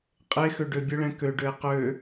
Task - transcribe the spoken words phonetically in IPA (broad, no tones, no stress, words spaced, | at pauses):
qʼexø ɖøbʲʊɭɛ̃ køɖøe̯ qø